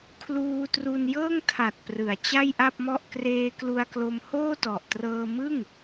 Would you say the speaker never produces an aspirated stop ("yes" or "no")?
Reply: no